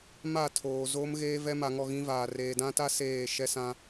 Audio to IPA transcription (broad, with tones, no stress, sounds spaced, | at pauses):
m a˦˨ tʰ oː˨ z oː˦ m ɣ eː˦ v ɛ˦ m a˨ ŋ ɔ˦˨ ɣ ĩ˦ v aː˨ r eː˨ d ã˦ t a˦ s eː˦˨ ʃ ɛ˦ s ã˦